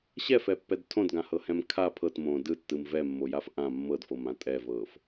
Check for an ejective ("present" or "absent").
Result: present